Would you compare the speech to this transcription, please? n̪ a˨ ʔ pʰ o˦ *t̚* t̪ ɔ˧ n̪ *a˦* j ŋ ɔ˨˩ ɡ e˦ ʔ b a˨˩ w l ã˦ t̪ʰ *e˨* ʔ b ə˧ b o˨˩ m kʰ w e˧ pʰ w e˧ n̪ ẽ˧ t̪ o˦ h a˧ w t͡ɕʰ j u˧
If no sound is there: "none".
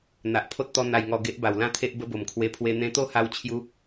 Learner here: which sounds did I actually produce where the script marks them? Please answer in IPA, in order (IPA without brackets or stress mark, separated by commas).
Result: t̚, a˨˩, e˦